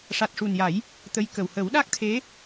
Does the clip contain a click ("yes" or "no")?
no